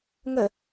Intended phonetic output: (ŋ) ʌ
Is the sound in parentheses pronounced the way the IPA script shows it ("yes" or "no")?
yes